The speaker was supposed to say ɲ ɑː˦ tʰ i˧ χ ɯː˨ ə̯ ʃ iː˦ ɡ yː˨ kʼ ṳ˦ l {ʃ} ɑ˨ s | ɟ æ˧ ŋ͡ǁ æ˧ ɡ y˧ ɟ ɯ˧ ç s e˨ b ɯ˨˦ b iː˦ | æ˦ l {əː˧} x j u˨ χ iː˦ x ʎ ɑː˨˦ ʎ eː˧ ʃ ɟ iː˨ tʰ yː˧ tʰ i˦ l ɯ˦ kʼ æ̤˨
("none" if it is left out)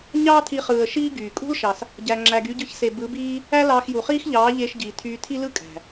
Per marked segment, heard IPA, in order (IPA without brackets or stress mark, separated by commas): ʃ, ɑː˧